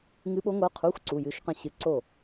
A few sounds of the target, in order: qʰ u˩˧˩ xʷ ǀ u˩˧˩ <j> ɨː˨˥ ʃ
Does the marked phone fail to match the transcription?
no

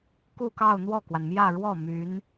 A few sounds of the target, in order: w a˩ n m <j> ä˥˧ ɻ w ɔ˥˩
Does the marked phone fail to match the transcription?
no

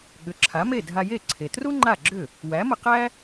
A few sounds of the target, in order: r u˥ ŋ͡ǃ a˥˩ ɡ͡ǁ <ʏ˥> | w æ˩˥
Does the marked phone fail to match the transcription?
yes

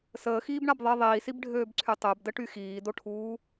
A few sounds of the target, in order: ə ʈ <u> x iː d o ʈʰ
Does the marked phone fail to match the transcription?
yes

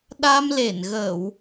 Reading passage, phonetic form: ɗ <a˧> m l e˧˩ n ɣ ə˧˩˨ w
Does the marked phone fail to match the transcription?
no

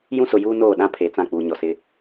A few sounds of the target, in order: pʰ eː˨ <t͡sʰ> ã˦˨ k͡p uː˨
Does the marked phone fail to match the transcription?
yes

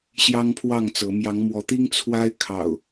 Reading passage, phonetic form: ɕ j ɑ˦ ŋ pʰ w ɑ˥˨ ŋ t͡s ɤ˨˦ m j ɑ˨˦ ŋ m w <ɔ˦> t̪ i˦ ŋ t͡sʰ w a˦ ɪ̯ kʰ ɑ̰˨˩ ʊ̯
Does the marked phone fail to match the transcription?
yes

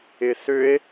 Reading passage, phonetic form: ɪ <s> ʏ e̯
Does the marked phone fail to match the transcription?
no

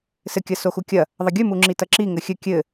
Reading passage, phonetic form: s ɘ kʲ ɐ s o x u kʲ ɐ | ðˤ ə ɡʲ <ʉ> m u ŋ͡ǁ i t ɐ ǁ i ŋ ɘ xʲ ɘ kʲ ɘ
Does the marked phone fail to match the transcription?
no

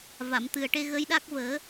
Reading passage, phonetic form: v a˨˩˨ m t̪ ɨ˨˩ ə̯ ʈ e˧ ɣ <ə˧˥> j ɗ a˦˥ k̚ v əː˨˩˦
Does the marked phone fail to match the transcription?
no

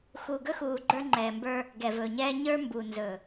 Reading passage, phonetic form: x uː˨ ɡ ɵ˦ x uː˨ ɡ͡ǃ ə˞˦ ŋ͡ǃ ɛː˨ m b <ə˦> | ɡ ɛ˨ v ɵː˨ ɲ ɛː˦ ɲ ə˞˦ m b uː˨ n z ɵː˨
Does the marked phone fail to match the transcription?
yes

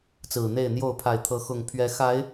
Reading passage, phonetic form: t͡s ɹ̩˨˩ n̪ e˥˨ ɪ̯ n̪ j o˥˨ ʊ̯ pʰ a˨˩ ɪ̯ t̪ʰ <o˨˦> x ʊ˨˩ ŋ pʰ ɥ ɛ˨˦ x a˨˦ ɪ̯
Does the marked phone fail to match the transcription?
yes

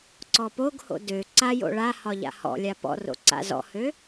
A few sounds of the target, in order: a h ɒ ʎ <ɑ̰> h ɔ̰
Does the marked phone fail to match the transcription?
yes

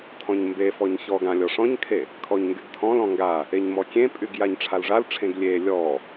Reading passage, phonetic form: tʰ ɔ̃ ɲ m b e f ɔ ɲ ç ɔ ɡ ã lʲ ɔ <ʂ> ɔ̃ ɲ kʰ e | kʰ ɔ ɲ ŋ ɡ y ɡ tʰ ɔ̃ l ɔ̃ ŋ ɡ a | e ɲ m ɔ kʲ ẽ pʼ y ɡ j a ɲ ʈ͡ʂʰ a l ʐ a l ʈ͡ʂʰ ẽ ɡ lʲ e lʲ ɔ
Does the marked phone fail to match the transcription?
no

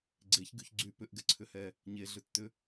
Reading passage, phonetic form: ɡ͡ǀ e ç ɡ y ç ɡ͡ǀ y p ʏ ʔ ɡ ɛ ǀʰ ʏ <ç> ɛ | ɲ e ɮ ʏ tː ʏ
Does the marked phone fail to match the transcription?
yes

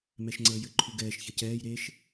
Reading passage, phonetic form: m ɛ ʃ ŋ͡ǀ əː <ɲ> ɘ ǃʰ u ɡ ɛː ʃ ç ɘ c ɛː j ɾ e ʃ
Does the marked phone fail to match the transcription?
yes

